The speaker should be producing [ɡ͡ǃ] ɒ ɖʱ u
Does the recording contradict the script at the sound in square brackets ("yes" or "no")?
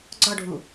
yes